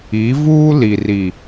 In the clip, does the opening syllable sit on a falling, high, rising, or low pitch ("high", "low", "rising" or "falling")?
rising